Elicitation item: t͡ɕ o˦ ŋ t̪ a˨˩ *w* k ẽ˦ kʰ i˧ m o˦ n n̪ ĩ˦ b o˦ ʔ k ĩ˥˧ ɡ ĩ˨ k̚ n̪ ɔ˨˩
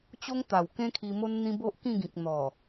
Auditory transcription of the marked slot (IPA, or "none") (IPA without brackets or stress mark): w